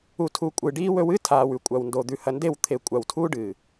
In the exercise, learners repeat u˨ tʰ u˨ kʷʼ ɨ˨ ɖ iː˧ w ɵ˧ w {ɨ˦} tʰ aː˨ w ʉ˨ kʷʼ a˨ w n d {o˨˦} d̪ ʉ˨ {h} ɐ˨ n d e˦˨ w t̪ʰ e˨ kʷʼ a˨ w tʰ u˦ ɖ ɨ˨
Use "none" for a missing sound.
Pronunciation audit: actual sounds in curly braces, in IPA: ɨ˦, o˨, h

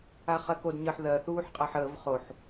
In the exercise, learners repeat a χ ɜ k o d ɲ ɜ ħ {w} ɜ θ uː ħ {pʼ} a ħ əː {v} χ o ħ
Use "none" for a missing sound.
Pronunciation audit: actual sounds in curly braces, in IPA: ð, qʼ, v

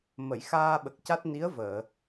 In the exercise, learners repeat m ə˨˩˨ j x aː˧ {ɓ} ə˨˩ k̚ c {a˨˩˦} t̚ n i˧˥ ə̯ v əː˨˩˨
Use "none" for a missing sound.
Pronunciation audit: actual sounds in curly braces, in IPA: ɓ, a˦˥

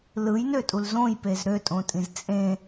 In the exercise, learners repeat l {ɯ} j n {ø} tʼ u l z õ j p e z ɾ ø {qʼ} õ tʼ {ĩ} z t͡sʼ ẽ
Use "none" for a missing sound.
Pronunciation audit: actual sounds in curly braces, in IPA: ɯ, ø, tʼ, ĩ

